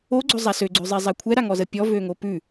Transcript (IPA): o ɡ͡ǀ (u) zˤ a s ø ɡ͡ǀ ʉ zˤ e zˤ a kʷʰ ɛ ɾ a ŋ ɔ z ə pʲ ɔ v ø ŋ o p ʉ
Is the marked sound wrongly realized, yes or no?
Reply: yes